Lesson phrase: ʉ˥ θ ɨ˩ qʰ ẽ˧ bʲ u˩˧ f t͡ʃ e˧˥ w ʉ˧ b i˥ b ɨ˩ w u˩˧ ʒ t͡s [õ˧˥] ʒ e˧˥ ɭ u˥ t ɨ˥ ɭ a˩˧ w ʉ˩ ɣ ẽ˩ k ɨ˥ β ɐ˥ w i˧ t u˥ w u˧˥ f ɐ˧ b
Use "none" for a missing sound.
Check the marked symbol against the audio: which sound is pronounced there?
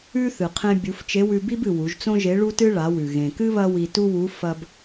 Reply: õ˥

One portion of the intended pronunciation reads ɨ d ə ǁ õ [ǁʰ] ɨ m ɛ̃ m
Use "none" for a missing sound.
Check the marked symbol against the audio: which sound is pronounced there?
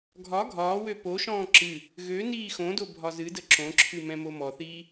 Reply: ǁʰ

